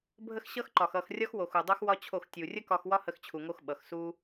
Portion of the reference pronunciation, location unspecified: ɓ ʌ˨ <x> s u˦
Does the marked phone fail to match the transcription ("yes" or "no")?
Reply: no